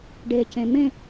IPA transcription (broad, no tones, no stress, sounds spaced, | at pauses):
ɖ e c ẽ m ẽ